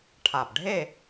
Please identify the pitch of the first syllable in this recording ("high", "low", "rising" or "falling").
low